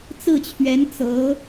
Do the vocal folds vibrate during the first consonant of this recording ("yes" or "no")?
no